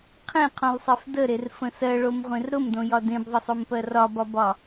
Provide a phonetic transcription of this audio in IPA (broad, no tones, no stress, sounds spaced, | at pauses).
qʰ ẽ qʰ õ lˠ sˤ e f d ə ɾ e r f ə̃ s ɜ ɭ o m ʁʷ ẽ r ɾ ʊ m d õ j ɒ d ẽ b ðˤ ə sˤ o m p ɜ r ɒ b ɒ b ɒ